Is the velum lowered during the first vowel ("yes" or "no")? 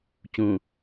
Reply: yes